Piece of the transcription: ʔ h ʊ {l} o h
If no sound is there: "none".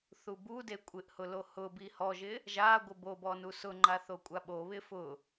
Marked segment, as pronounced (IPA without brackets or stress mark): l